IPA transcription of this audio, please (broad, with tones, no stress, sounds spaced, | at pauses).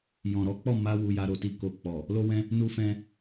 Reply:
j ɔ̃˨ ɾ ɔ˨˦ k͡p ɔ˦˨ m a˧ w u˨ j a˧ ɾ o˨ t i˨ k o˨ k͡p ɔ˨ | l o˦ w ɛ̃˦ | n u˦ f ɛ̃˦